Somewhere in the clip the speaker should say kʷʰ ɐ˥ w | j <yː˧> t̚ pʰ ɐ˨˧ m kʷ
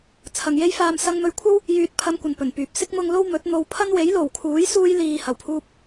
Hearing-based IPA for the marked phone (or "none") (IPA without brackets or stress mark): yː˨